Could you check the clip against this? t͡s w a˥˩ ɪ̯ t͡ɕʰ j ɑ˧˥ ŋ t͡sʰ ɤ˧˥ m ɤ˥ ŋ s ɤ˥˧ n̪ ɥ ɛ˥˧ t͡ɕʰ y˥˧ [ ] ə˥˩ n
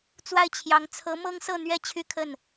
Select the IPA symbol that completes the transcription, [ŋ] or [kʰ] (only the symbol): kʰ